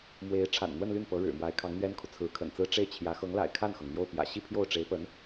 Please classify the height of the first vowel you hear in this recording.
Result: mid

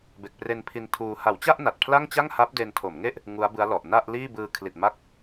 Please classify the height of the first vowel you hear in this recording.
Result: mid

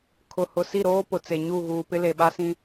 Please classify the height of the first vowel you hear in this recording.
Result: high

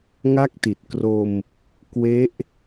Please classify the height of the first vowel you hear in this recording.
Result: low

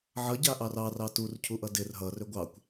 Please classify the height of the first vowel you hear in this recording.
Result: mid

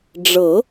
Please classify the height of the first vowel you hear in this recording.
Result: mid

